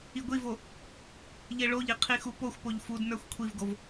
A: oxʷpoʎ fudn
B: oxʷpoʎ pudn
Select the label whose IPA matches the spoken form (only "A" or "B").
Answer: A